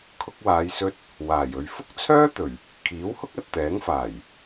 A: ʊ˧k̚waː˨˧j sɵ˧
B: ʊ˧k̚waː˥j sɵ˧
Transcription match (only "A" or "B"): A